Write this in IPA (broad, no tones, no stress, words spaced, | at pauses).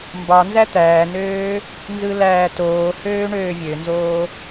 mbɑnzæ t̪æːnøː | nzɯlæːtoːhøː ɳøːvʲønzoː